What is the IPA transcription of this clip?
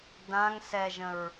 dãŋ sɛʒə̃ɹ

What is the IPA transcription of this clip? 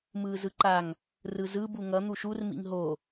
mɯːzɯǃaŋ | rɯzɯ buŋʌ n̪uʃur mḭŋɦo

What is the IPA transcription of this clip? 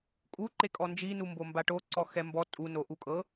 kʼu ǃekʼɔnd͡ʒi numbombaʈo ǀɔxɛmbɔ tʼu noʔukʼɤ

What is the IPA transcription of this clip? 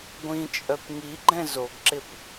ɡʷĩt͡ʃʼœp ŋiɡ͡ǃɛ̃ zoɡǁɪp

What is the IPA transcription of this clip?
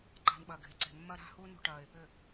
ǃa̤˦nɓɐ˧ɡʱe˧ǀe̤˧ mːɐ˦ɾa̤˦hu˦ nṳ˧ʈɐː˨ɪ̯pʏ˦˨

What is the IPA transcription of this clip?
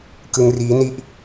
kɯ˧ŋriː˦˥ ni˦˥ʔ

